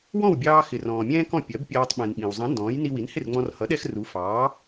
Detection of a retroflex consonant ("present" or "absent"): absent